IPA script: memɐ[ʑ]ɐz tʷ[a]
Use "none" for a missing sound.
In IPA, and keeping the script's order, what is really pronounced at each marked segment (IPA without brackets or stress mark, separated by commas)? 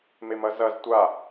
z, a